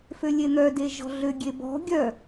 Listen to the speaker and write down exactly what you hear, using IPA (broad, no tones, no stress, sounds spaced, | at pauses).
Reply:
f ø lʲ e n̪ œ d e ʒ ɔ̤ ɮ ø ɡʲ e b ɔ̤ ɡʲ œ